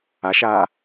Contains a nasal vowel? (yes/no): no